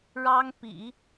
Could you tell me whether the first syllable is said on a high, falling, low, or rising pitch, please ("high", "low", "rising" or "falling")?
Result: high